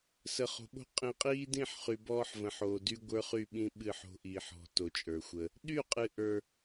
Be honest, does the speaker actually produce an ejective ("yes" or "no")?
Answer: yes